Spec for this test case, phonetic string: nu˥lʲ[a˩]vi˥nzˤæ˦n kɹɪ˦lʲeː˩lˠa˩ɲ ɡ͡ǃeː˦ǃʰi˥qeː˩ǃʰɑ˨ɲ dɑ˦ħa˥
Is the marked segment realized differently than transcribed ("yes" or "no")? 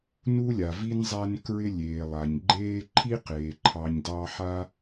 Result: no